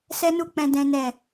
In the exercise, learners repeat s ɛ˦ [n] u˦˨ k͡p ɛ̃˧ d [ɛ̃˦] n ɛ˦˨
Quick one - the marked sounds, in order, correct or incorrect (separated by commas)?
correct, correct